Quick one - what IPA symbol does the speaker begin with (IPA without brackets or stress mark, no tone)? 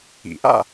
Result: ḭ